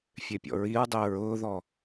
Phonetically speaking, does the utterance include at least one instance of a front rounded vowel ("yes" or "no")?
yes